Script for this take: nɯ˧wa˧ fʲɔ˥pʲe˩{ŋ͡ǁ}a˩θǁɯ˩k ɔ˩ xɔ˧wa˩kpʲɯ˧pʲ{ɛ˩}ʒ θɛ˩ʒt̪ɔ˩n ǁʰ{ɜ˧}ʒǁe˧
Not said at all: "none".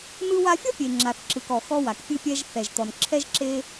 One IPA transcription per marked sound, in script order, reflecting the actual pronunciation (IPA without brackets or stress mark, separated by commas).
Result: ŋ͡ǁ, ɛ˧, ɛ˧